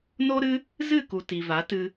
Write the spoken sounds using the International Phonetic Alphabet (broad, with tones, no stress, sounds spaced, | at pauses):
n o˦ ɾ ɨ˦ | z ɨ˦˨ k u˨ t i˨ v a˨˦ t ɨ˧